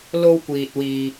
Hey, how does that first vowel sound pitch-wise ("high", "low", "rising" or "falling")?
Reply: high